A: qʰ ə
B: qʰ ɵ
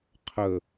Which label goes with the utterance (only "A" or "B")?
A